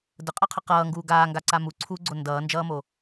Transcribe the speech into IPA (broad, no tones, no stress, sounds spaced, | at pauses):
d ə qʼ a qʰ ə q ʌː ŋ ɡ uː ɡ aː ŋ ɡ a ǀ a m u ǀʰ uː ɡ͡ǀ o n d ʌː n d͡ʒ ʌː m o